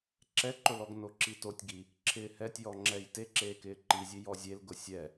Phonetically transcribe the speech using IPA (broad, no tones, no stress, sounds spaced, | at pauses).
ǁ ɛ ǃ ʊ l ɔ ɡ n o ǁ i t o tʲ ɡ i | ǁʰ ɪː h ɛ tʲ j ɔ ŋ͡ǁ ɛ j t e ǁ eː k ɪː ǃ i zʲ e j ɔ zʲ e l ɡ ʊ sʲ ɛ